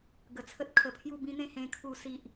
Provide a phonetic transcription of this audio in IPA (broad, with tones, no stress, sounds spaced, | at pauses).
ɡ ə˨˩ t͡sʰ ə˦ t̚ kʰ ə˨˩ pʰ j u˥˧ b ĩ˦ n̪ ẽ˥˧ h ẽ˦ kʰ u˦ s i˦ ʔ